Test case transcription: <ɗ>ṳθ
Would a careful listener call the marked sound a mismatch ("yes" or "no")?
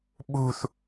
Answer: yes